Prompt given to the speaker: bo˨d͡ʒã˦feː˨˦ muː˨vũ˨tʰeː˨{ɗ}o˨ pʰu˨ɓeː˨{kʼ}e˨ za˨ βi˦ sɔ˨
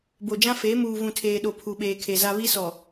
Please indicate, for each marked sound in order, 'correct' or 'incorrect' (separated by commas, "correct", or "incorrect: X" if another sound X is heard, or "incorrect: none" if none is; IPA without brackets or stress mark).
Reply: correct, incorrect: kʰ